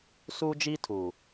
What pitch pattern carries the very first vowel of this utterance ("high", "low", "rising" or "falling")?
high